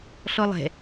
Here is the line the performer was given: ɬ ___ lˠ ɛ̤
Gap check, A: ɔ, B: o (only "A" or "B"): A